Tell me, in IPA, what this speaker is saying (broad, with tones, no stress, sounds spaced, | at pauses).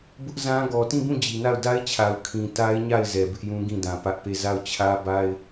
b ʊ˦ ʔ z ã˦ ɡ ɔ˨ t ĩ˦˨ b ũ˦˨ d͡ʑ i˨ n a˦˨ ʊ̯ d a˦ ɪ̯ t͡ɕʰ a˨ ʊ̯ kʰ ĩ˨ t a˦ ɪ̯ ɲ a˦˨ ɪ̯ z ɛ˨ b ɪ˦ ʔ j ũ˦ ɡ ĩ˦˨ d ã˨ p ä˦ ʔ p e˦˨ z a˦˨ ʊ̯ t͡ɕʰ ä˦ b a˦ ɪ̯